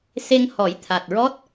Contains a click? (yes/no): no